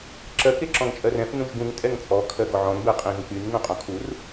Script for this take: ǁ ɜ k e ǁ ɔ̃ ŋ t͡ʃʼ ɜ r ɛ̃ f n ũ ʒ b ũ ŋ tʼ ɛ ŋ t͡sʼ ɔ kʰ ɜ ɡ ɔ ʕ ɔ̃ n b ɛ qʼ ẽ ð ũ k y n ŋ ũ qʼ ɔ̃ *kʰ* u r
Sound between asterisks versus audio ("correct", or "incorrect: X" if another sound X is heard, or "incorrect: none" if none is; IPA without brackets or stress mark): correct